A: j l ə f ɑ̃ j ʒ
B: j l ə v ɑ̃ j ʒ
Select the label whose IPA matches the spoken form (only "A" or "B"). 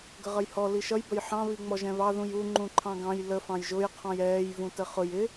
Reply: A